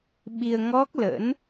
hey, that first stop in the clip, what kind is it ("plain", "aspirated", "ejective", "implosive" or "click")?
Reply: implosive